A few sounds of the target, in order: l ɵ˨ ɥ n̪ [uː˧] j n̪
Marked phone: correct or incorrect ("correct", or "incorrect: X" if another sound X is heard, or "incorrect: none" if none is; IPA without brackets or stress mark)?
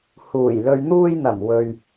correct